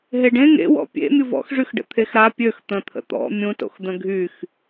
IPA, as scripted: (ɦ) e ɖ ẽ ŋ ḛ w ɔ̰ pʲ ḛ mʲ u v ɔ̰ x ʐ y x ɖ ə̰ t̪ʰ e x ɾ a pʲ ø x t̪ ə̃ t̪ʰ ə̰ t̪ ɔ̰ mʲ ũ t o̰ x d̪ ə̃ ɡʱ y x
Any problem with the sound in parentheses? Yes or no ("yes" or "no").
no